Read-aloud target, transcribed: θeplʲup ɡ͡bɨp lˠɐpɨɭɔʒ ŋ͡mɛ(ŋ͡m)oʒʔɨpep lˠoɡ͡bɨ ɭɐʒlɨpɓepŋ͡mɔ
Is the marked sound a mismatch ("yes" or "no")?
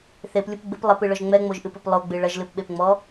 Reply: no